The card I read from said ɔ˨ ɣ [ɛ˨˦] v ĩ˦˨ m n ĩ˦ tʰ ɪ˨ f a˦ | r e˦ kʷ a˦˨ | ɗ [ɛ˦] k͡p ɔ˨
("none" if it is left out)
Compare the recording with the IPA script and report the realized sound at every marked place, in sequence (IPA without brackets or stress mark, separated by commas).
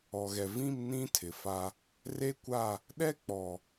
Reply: ɛ˨, ɛ˦